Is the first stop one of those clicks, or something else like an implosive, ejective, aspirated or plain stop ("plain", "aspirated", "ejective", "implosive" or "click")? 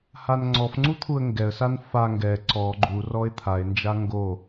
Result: click